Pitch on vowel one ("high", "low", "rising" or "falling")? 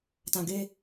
low